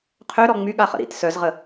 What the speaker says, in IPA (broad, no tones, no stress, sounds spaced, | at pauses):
qʰ ø ɾ ɔ ŋ͡m y ɠ a χ ə̰ ɾ ḭ t s œ z ʁ ə